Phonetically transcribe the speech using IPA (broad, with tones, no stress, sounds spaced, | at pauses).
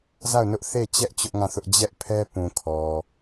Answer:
z a˦˨ ʊ̯ n ʊ˦ ʔ θ e˦˨ t͡ɕ ɛ˦ ʔ t͡ɕ ʊ˦ ʔ ŋ ã˦˨ θ ʊ˦ ʔ d͡ʑ ɛ˦ ʔ pʰ ɛ˦ p ũ˨ kʰ ɔ˨